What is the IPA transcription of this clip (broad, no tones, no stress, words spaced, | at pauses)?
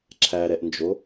ǁʰæɾɛʔnd͡ʒo